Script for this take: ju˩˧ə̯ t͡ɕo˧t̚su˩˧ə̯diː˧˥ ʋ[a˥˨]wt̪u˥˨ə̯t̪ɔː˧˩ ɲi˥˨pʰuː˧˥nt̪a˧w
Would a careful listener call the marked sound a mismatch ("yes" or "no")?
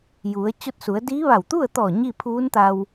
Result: yes